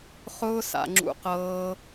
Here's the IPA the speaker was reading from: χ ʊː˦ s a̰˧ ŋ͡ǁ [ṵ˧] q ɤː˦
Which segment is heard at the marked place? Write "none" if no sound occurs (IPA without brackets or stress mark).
ṵ˧